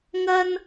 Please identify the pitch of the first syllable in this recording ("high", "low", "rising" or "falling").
high